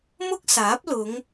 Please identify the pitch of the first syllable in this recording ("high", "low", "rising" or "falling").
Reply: high